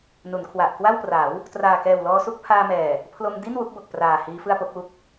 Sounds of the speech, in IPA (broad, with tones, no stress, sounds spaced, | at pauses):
n u˩˦ n kʰ w a˨˩ ʔ k w a˥˩ w p r a˩˦ w | t r aː˨˩ k ɛː˨˩ w l ɔː˧ s u˥˩ k̚ pʰ aː˧ m ɛː˨˩ | pʰ l o˧ m d i˥˩ n w u˦˥ k̚ b o˨˩ k̚ p r aː˨˩ h iː˦˥ f ɯ˥˩ a̯ p o˦˥ k̚ w u˥˩ k̚